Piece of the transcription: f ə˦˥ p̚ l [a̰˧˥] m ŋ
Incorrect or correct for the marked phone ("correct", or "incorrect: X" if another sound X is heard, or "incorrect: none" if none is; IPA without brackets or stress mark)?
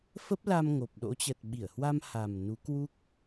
incorrect: a˧